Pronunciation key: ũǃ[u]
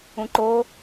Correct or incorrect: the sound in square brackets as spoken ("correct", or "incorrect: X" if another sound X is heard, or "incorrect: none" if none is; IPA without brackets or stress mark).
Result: incorrect: o